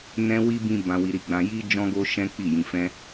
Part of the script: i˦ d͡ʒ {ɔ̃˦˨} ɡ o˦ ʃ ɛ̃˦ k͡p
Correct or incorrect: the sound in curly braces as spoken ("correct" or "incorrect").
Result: incorrect